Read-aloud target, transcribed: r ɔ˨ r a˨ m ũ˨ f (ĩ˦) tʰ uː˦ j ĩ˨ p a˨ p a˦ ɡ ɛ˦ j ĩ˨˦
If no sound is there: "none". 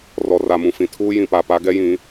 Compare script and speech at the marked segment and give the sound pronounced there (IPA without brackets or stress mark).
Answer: ĩ˨